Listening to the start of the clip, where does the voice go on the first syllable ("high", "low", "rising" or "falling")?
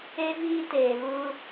high